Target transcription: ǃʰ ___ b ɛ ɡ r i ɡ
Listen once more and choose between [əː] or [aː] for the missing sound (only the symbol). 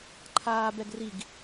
aː